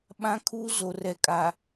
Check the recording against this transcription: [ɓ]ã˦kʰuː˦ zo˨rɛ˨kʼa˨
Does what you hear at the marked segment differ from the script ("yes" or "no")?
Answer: no